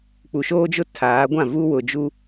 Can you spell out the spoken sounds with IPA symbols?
k͡p u˨ ʃ oː˦ d͡ʒ ʊ˦ tʰ aː˨˦ ɡʷ ã˦˨ v u˦ w ʊ˨ d͡ʒ u˦

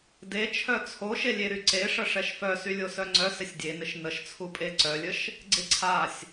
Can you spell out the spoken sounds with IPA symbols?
d e t͡ʃʰ œ t͡sʰ o ʃ e lʲ e ɾ y ǀ e ʂ ə ʂ ɛ ʃ f œ s y lʲ o s œ ŋ͡ǀ œ s ɪ sʲ dʲ e n ɪ ʃ n ə ʃ t͡sʰ u pʼ e ǀ œ lʲ ə ʃ | ɡ͡ǀ ɪ ǀʰ a sʲ

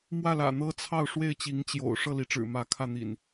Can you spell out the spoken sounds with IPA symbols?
m w ä˥˨ l ä̰˨˩ n̪ ɤ˦ t͡sʰ ɑ˥˨ ʊ̯ ʂ w e˥˨ ɪ̯ t͡ɕ i˨˦ ŋ t͡ɕ j o̰˨˩ ʊ̯ ʂ ɤ˥˨ l i˨˦ ʈ͡ʂ ɻ̩˨˩ m ä˨˦ kʰ ä˥˨ n̪ ḭ˨˩ n

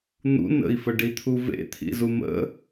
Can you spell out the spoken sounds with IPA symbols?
n̪ ṵ n ə̰ i̯ f ə ɖ i t̪ʰ u v ḛ t̪ʰ ḭ z u m ə̰

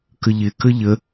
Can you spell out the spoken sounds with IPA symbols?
k ə ʎ ɪ k ə ʎ ə

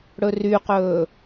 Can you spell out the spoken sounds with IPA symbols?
ɽ ɵ r y q ɵː

